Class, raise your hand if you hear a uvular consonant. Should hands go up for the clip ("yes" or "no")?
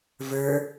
no